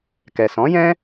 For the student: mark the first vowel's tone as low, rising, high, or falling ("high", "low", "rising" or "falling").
low